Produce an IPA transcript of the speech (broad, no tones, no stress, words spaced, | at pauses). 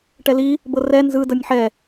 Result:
ʈɛli | bɤrɛ nzɯ dɤnʲħɛ